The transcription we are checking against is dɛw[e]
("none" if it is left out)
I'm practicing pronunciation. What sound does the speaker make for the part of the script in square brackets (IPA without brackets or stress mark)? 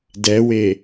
e